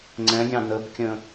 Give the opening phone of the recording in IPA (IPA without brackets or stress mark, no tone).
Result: ŋ͡ǀ